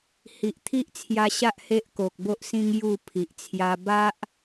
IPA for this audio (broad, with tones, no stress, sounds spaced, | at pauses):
h i˨ ʔ t̪ʰ i˦ ʔ t͡sʰ j a˧ ɕ a˦ ʔ h e˦ ʔ k o˨ k̚ b o˦ ʔ s ĩ˦ ŋ j u˥˧ pʰ i˨ ʔ t͡sʰ j a˧ b a˦ ʔ